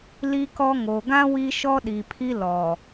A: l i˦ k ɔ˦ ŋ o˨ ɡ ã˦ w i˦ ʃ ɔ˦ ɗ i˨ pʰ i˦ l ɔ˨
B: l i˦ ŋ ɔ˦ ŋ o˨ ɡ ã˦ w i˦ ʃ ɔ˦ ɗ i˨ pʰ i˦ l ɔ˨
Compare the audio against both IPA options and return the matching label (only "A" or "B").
A